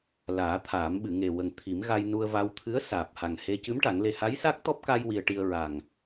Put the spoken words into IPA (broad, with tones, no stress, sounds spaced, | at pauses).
l aː˨˩˦ t̪ʰ aː˨˩˦ m ɓ ɨ˨˩˨ ŋ e˨˩ w ə˨˩ ŋ t̪ʰ i˨˩˦ m ɣ a˧ j n u˧ ə̯ v a˧ w t̪ʰ ɨ˧˥ ə̯ s aː˨˩ p̚ h a˨˩ ŋ h e˧ c ɨ˧˥ m ʈ a˨˩˦ ŋ l e˧ h a˧˥ j s a˦˥ k̚ t̪ ɔ˦˥ p̚ k a˧ j w i˧ ə̯ ʈ i˧ ə̯ ɹ a˨˩ ŋ